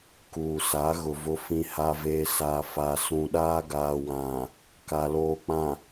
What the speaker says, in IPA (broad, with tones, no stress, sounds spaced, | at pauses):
k uː˨ s a˨˦ ɣ ʊ˨ v ʊ˦ f ĩ˦ h a˦ v eː˦ s a˨ f a˨ s ũ˨ ɗ aː˦ ɡ aː˨ w ã˨ | k a˨ l oː˨ k͡p ã˨